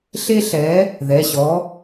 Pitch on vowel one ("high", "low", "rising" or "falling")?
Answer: high